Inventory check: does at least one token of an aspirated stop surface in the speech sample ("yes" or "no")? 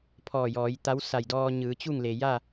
yes